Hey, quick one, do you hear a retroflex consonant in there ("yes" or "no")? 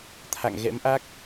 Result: no